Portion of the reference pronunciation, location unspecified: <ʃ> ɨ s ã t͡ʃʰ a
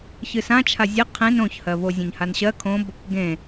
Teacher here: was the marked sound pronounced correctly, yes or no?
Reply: no